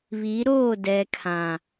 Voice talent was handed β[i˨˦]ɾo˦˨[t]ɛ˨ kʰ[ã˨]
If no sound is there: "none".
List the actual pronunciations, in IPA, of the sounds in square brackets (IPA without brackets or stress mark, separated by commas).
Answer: i˨˦, d, ã˨